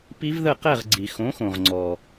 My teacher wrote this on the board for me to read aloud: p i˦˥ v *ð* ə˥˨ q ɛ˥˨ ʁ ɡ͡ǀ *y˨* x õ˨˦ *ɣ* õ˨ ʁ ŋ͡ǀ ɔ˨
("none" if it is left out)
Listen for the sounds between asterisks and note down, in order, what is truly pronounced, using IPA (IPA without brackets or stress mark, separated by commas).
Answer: ð, i˨, x